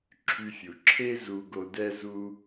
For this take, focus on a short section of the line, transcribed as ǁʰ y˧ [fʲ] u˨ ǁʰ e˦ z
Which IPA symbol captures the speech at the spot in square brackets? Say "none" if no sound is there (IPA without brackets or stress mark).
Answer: fʲ